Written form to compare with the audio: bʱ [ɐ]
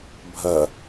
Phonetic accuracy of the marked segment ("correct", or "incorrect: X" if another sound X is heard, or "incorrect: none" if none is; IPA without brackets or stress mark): correct